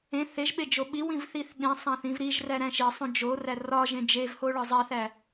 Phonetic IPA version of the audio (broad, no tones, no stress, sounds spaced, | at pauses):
ẽ θ e ʒ ɓ e d͡ʒ o ɓ i w ĩ v θ i θ ɗ ĩ sˤ æ̃ θ ĩ v ɾ i ʒ r æ ɾ æ̃ ʃ i sˤ õ d͡ʒ o r æ r ɒ ʒ ẽ d͡ʒ e v h o ɭ ɒ zˤ æ θ æ